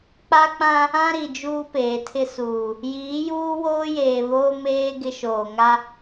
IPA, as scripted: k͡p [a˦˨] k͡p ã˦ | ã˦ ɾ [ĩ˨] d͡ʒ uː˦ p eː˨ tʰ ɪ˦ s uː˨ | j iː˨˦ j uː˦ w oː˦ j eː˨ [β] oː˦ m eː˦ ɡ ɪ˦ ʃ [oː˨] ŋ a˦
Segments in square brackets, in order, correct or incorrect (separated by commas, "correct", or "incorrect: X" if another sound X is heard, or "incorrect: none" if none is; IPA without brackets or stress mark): incorrect: a˦, incorrect: i˨, correct, correct